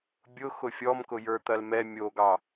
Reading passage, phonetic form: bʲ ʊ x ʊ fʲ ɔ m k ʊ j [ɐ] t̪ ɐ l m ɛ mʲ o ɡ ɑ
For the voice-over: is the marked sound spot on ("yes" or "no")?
no